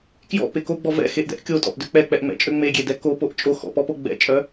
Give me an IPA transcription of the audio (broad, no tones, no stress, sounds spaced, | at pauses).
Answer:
k j ɔ̰ p e k o ɡ͡b ɔ v ɛ̰ x e ʔ d ɛ̰ ʔ kʲ o tʼ ɔ̰ ʔ d ø k͡p ɛ k͡p ɛ ʔ ŋ͡m ɛ̰ t͡ʃʼ ø ŋ͡m e ɡʲ e d ɛ k o p o ʔ t͡ʃʼ o x ɔ̰ p ɔ p o ɡ͡b ɛ̰ t͡ʃʼ œ